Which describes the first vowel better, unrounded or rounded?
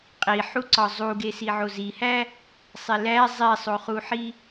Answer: unrounded